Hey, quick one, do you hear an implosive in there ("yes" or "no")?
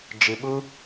yes